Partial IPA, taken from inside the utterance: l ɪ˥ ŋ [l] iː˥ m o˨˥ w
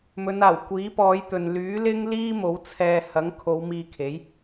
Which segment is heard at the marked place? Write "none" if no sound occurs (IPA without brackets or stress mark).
l